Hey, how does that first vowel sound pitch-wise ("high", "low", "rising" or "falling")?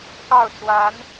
falling